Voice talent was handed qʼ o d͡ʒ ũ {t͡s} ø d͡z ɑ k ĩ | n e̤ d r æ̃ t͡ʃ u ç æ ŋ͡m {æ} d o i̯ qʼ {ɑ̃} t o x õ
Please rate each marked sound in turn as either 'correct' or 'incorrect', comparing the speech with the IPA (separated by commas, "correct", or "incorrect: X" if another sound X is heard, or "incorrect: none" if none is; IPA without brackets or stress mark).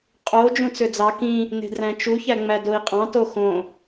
correct, correct, correct